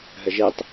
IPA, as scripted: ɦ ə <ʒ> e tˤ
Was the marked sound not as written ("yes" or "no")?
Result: no